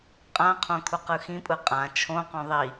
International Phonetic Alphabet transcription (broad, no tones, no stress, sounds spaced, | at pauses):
qʼ ã qʰ õ kʰ u q ɯ x ĩ pʼ ɯ qʼ ã t͡ʃʰ õ q õ ðˤ i